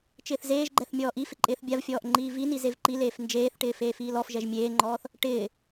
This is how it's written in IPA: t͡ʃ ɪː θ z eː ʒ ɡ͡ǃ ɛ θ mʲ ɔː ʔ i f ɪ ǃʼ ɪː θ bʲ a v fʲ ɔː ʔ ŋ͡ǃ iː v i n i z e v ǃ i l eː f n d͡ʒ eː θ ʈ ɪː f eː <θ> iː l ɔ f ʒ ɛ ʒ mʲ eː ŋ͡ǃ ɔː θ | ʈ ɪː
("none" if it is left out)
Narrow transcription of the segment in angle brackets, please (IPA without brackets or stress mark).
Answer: f